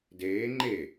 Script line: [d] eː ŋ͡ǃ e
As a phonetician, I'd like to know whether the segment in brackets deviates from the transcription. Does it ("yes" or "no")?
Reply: no